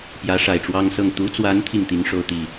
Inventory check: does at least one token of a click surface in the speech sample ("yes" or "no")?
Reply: no